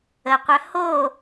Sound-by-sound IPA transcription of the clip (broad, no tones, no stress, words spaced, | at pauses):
əqʷœ ho